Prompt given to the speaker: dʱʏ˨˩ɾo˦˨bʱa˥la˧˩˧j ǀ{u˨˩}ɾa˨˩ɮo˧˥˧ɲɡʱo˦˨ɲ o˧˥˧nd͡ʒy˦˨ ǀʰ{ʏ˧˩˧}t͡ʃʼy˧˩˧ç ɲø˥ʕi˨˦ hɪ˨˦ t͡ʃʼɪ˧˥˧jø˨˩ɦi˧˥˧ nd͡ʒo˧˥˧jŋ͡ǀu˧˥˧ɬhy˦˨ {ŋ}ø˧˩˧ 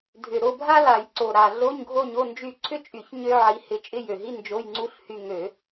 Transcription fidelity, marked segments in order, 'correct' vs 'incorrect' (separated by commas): incorrect, incorrect, correct